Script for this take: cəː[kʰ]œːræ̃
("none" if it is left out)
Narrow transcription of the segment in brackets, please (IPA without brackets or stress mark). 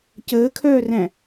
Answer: kʰ